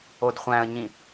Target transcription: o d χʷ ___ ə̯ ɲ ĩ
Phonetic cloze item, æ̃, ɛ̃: æ̃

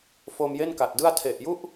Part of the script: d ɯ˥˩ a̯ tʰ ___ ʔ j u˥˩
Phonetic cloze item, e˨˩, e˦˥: e˨˩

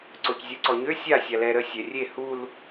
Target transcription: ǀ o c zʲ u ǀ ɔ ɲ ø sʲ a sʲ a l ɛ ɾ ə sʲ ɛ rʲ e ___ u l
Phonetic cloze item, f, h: h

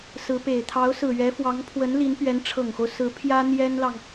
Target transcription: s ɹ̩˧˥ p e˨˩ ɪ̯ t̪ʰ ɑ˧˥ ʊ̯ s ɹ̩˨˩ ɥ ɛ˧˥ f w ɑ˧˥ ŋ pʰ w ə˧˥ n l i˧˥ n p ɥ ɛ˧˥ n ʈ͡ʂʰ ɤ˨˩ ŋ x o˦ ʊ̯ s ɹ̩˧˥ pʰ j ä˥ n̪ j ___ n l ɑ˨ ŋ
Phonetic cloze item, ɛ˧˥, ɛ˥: ɛ˥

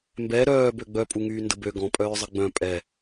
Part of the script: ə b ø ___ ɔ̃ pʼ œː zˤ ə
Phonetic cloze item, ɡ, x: ɡ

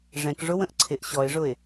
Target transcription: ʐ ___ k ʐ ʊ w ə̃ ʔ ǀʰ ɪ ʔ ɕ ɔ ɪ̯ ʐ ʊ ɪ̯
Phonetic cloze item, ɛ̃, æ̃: ɛ̃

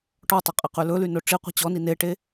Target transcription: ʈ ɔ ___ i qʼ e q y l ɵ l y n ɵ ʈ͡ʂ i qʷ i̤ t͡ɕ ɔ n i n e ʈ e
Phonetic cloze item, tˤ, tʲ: tˤ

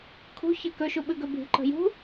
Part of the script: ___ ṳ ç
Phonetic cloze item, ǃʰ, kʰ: kʰ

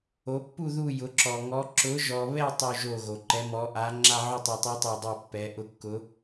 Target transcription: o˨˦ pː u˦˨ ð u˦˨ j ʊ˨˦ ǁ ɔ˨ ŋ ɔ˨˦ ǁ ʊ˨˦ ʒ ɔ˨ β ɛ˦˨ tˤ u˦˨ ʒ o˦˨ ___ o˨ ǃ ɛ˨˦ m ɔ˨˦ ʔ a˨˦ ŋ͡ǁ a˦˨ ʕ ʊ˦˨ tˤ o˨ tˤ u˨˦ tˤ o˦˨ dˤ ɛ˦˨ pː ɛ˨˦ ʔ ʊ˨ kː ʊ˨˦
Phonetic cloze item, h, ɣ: ɣ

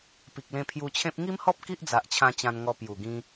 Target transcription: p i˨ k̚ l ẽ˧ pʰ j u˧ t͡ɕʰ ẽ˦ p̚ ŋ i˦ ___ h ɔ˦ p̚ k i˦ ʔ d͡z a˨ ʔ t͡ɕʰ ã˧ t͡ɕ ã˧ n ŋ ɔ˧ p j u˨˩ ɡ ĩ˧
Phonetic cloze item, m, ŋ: m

